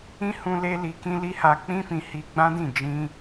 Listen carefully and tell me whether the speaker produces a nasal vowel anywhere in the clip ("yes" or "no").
yes